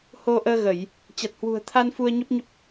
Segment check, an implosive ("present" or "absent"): absent